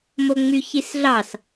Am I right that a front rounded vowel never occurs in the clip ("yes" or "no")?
no